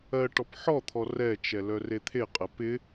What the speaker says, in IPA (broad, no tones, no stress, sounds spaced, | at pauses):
ɜ ʈ ɔ p ħ ɔ t̪ʰ ɔ r ɛ t͡ʃ ɛ l œ r e t̪ʰ e qʼ ɛ p ɪ